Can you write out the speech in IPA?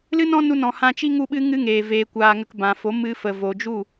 l ɨ˦ n ɔ̃˦ n u˧ n ɔ̃˨ h ã˧ t͡ʃ i˦ ŋ u˦ ɓ ɨ˦ ŋ ɨ˦ ŋ eː˨ v eː˨ kʷ aː˨ ŋ ə˨ k b ã˨ f o˨˦ m ɨ˧ f ə˨ v o˨ d͡ʒ u˦˨

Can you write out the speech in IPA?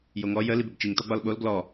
j o ŋ ɔ j ə l i b ɛ b t͡ʃ i ŋ t ɔ ɡ͡b ɒ l ɓ o l ɡ l ɔ

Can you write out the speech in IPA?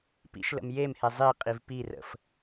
p ḭ ʃ l ə̰ m j e m h e zˤ i qʼ i v p i r ə̰ f

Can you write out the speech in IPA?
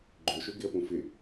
ɡ͡ǃ ʏ ʃ ʏ ɡ ɪ ə̯ p ũ f ɪ

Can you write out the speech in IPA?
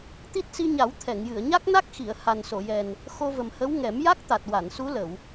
t̪ i˦˥ t̚ s i˧ ɲ a˨˩˦ w t̪ʰ ɛ˨˩˨ ŋ j ɨ˨˩˨ ə̯ ɲ a˦˥ k̚ n a˦˥ k̚ x i˨˩˨ ə̯ h a˨˩ n s o˨˩˨ j ɛ˨˩ n | x o˧ v ə˨˩ m h ə˧˥ w ŋ ɛ˨˩˦ m j a˦˥ k̚ t̪ a˨˩ t̚ w a˨˩˨ n s u˧˥ l ə˨˩˨ w

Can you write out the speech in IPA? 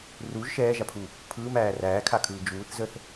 r u ʒ ʃ ɛː ʒ a pʰ u | pʰ ɯː m æː r æː kʰ a kʰ ɯː d͡ʒ uː θ z ə θ

